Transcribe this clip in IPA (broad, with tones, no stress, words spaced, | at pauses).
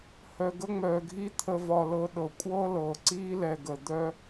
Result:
hœ˨ɡə˦ŋ͡mœː˨ɡʱi˦ t̪ʰə˨vɒ˨lɤ˨ ɗɤ˨kʷʼɤː˦lɤː˨ ǀiː˦lɛ˨ɡə˨ d̪œ˦